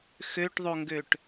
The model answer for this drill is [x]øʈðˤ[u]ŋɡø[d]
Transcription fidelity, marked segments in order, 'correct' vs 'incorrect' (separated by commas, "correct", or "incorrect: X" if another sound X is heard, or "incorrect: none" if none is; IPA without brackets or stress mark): correct, incorrect: o, incorrect: ʈ